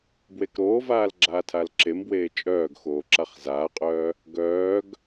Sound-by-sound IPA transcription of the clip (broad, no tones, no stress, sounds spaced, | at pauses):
b w e k ɾ oː v aː l ɡ͡ǁ aː tʰ a l ǁ e m b w eː t͡ʃʼ œː ɡ x oː ǁ a χ z aː qʼ œː | ɡ œː ɡ